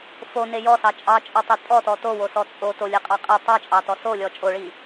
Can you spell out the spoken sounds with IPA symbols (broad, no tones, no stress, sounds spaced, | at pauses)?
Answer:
f o n e j ɔ s ɑ t͡ʃʼ ɑ t͡ʃʼ ɔ tˤ e tʼ ɔ t ɔ t o w o s ɔ t͡sʼ o t o lʲ e qʼ ɑ qʼ e tˤ ɑ t͡ʃʼ ɑ t ɔ s o lʲ ɔ t͡ʃʼ o ɭ i